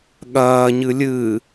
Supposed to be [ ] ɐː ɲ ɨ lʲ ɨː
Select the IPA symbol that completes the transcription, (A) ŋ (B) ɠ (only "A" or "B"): B